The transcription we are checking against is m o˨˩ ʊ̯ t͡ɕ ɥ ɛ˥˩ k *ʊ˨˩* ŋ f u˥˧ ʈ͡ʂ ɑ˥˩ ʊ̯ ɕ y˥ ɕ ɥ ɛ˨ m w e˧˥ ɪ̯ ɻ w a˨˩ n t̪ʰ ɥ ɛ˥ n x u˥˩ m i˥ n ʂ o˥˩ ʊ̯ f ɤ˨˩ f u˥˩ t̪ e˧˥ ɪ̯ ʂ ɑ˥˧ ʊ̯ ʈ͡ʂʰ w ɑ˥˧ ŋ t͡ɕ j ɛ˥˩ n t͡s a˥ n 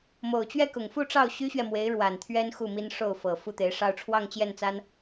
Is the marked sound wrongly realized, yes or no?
no